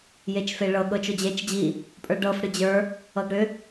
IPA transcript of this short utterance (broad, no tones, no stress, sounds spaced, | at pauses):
j e t͡ʃ f e ɭ ɤ ɠ ɤ t͡ʃ o d͡ʑ e t͡ʃ d͡ʑ i | pʼ ə˞ ɖ ɤ f ɽ ɨ d͡ʑ ə˞ | ɤ ɡ ɽ ʏ